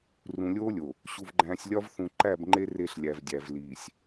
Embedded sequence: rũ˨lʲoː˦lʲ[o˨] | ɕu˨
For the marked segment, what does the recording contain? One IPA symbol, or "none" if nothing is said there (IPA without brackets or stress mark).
o˨